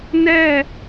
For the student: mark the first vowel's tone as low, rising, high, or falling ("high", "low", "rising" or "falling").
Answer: falling